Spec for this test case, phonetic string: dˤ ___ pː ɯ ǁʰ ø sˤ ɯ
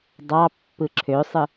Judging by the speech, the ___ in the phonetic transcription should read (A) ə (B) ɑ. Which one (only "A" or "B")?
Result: B